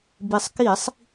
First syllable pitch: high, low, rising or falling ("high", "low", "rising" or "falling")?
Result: low